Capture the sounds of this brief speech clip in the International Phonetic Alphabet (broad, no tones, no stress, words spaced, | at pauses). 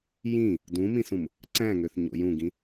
jĩ | dũmĩsũm | ǀæ̃ŋøθ ɲo̰jũɡĩ